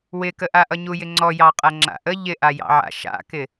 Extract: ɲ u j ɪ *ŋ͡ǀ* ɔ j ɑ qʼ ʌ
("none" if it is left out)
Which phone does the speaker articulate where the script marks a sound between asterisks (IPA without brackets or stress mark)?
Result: ŋ͡ǀ